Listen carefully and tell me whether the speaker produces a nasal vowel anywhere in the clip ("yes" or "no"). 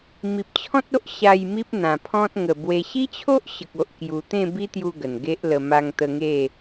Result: yes